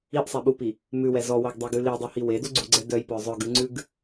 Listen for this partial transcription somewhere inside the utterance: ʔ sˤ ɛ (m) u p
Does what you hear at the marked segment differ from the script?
yes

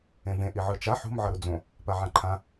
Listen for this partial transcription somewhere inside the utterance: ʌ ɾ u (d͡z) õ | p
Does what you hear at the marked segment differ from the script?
no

